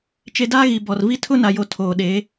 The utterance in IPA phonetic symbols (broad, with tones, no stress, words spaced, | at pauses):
t͡ʃe˦ daː˦ɣi˨ bɔ˨rvi˦ tʰʊ˦na˨jo˨ tʰoː˨ɗe˨˦